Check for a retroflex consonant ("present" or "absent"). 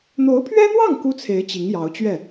absent